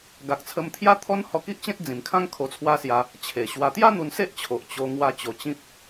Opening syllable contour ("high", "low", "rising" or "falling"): low